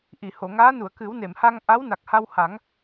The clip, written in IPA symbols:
ʔ i˨˩˨ h o˨˩˨ ŋ aː˧˥ n u˨˩˨ ə̯ k ɨ˨˩˦ w n e˨˩˨ m h a˧ ŋ ʔ a˧˥ w n a˨˩ k̚ h a˧ w h a˨˩˦ ŋ

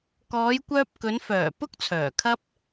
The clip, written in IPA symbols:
k ɔː˨˧ j kʷ œː˧ p̚ k ɵ˨˧ n f œː˨˩ p ʊ˥ k̚ t͡sʰ œː˨˩ kʰ ɐ˥ p̚

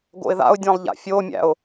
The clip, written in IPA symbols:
ɡ o̰ ɪ̯ ð a̰ ʊ̯ dʲ ã lˠ ʎ a̰ fʲ o mʲ æ̰ ʊ̯

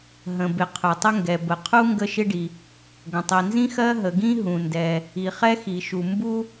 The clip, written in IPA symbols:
ɦ ə̃˩ b ɪ˩ qʰ ʊ˩ tˤ ɪ˥ ŋ ɡ ɛ˩ b ə˩ qʰ u˥ ŋ ɡ ə˥ ʃ ɪ˥ ɖ i˩ | ɡ ə̃˩ tˤ i˩ n z ĩ˥ x ɜ˥ ɦ ə˩ ɡ ĩ˥ ɦ ũ˩ n d ɛ˩ | i˩ χ ɛ˥ x i˩ ʃ u˩ m b u˥

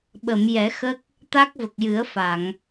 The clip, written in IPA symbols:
ɓ ə˨˩˨ m j ɛ˨˩˦ x ə˦˥ k̚ | t̪ a˦˥ k̚ v ə˨˩ k̚ j ɨ˨˩˦ ə̯ f a˨˩˨ ŋ

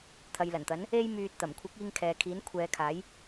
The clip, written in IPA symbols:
t̪ʰ ɐ˨ j l ɐ˨˩ n t̪ ɐ˨˥ n | e˥ j m yː˧ t̚ t̪ ɐ˨˩ m kʷʰ ɪ˨˥ k̚ iː˧ ŋ kʰ ɛː˨ kʰ iː˨˥ n kʷʰ ɛː˨˧ kʰ aː˨˥ j

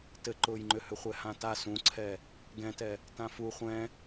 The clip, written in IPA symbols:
t ɘ ǃ ʊː j ŋ͡ǃ ʏ h ʏ χʷ ɛ h ã t a s ũ ǀʰ ɛ | ɡ ɛ̃ t ɛ | t ã f u χʷ ɛ̃

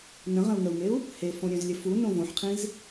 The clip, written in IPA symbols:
n ə̃ ʁ ə̃ u̯ ŋ ə u̯ ŋ e u̯ | h e f õ ɾʲ œ̃ z lʲ ə f u n õ v õ ħ qʰ ĩ z

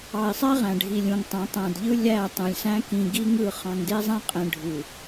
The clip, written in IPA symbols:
ɑ˨ i̯ sˤ æ˦ ʁ æ̃˨ ɖʱ i˨ lʲ ũ˨ ŋ tˤ æ̃˨˦ tˤ æ̃˨ d ʎ ɯ˦ lʲ æ˦˨ tˤ ũ˨ lʲ s æ̃˦ k ĩ˨ ɡ i˦ ŋ ɯ˦˨ χ ɑ̃˨ ŋ d e˦ zˤ æ̃˦ qʼ ẽ˨ ɖʱ u˨

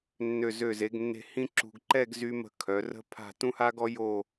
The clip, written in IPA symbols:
nː ø˧˩ z ø˧˩ z e˩˧ ɡ nː e̤˧ h ĩ˥ ǁ ṳ˧ ɡ ǃ ɛ˥˧ ɡ z y˥ m ə̤˥˧ kʰ œ˩˧ r ə̤˥ pʰ a̤˥˧ t ũ˥ h a˥ ɡ ɔ˥ j o˥˧

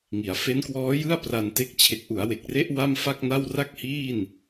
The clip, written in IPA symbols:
ŋ i˩˦ a̯ f e˦˥ n k w ɔː˦˥ j ɯ˥˩ a̯ p r a˧ n t e˦˥ k̚ t͡ɕʰ e˨˩ k̚ ʔ u˩˦ a̯ w e˨˩ k̚ r e˦˥ ʔ w a˥˩ m f a˥˩ k̚ n a˥˩ w r a˥˩ k̚ h iː˥˩ n

